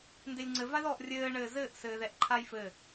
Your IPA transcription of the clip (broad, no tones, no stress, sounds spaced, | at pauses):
n d e lʲ ŋ͡ǀ ɘ v a ð ɔ ʔ rʲ ɘː ɳ ɘː z ɘː ʔ s ɘː ð ɛ ʔ ǃʰ a j f ɘ